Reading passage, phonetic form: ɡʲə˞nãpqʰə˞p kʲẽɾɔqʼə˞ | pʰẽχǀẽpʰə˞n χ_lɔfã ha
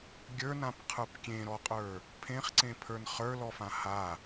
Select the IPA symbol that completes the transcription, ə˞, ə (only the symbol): ə˞